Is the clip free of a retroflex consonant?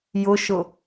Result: yes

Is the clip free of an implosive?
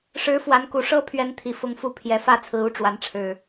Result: yes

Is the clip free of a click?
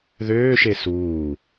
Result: yes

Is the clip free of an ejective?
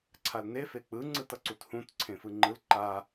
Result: yes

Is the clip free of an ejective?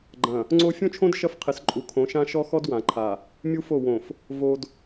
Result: no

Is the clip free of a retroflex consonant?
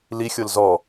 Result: yes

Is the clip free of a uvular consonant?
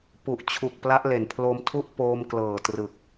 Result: yes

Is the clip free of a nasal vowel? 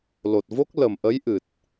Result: yes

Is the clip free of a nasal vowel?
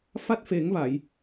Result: yes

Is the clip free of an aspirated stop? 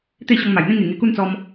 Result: yes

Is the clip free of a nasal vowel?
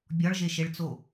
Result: yes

